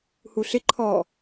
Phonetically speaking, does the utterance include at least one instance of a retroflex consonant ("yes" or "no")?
no